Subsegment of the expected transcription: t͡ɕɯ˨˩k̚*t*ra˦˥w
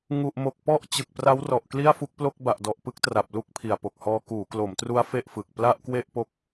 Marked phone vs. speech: incorrect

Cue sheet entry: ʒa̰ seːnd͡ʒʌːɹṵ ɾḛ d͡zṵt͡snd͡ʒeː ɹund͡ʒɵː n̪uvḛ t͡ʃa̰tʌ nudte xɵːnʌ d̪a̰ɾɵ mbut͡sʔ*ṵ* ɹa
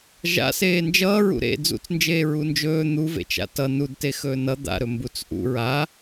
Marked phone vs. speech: correct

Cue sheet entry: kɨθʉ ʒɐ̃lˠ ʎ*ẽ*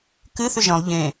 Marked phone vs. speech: correct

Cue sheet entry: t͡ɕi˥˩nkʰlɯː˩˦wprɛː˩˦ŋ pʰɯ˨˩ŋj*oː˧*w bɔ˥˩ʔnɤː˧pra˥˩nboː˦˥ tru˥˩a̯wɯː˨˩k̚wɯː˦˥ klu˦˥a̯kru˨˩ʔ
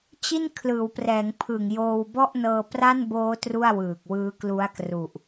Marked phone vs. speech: correct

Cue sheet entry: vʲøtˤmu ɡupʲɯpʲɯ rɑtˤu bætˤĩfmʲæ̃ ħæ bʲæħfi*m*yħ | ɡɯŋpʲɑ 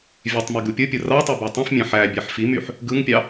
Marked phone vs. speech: correct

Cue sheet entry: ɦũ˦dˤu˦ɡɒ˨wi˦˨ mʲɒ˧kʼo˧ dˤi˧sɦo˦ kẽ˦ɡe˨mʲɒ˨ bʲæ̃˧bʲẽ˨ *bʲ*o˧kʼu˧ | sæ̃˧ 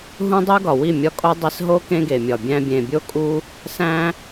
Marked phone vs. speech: correct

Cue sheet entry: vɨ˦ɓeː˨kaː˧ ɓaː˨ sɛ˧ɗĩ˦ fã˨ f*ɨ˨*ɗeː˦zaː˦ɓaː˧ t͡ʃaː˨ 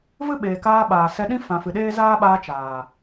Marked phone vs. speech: correct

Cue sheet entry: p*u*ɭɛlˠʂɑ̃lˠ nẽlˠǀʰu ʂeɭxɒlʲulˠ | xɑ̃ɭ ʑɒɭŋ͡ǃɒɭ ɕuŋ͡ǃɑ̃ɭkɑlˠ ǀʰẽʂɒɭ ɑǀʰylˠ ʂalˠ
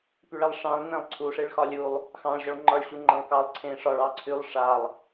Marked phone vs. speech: incorrect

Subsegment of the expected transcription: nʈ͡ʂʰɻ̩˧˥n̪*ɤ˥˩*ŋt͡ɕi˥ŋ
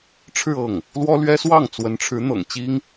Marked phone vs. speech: incorrect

